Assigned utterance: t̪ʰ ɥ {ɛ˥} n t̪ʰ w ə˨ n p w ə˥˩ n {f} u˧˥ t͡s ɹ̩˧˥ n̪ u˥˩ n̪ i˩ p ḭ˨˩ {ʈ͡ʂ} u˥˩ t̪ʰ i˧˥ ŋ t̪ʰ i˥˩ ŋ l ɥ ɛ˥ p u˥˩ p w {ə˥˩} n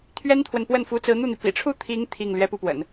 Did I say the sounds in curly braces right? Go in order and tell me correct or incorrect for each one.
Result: correct, correct, incorrect, incorrect

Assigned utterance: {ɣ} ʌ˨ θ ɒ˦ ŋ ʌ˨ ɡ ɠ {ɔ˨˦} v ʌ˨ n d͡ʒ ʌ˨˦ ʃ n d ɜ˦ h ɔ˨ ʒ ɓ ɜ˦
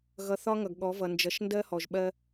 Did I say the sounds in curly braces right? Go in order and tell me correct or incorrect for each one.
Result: correct, correct

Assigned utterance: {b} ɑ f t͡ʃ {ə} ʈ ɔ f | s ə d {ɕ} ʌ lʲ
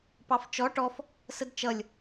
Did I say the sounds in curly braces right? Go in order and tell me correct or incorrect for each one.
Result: incorrect, incorrect, incorrect

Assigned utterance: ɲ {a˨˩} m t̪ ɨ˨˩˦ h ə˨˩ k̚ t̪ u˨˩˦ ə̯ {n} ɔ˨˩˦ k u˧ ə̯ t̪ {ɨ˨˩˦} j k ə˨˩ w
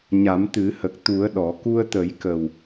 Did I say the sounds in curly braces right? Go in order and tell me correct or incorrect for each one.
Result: incorrect, incorrect, incorrect

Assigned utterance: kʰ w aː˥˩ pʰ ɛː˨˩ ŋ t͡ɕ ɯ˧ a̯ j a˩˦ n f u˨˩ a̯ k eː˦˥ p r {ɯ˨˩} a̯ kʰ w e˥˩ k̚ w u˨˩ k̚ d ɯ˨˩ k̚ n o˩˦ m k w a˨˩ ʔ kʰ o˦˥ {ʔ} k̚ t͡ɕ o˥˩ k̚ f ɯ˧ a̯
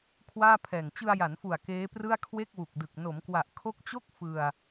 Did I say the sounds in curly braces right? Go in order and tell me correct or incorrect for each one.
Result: incorrect, incorrect

